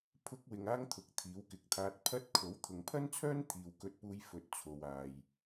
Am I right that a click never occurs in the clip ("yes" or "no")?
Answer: yes